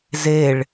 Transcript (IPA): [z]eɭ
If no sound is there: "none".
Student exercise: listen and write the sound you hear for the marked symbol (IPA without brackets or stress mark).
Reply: z